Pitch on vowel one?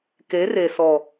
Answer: rising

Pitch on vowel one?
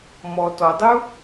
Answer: low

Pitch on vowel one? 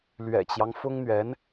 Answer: low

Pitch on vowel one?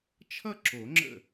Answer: falling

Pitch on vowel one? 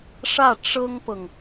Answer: falling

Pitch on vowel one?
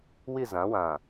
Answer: falling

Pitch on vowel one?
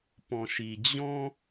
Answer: low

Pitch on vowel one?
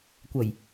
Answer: low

